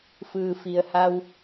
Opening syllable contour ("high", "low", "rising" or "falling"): low